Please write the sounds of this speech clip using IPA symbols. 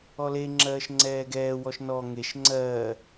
ɔle ŋ͡ǁɜːʃŋ͡ǀɛːɡɛː wɔʃnɔ ŋeʃ ŋ͡ǀɜː

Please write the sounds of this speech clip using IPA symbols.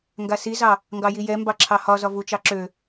ŋɡasizɑ | ŋɡɑjijɛ mbɑǁʰɑhɒ zɒvu t͡ʃɑǁø

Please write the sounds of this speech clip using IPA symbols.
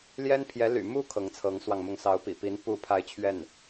ljɛ˥npʰjɛ˧˥ ly̰˨˩ mu˥ kʰɤ˧˥ŋt͡sʰɤ˧˥ŋswɑ˧ŋmʊ˥˩ŋ sɑ˧˥ʊ̯ pḭ˨˩pi˧˥n pu˥˧ pʰa˥˧ɪ̯t͡ɕʰɥɛ˥˩n

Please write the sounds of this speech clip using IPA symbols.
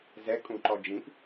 zɛkʼũǃɔ d͡ʒĩp

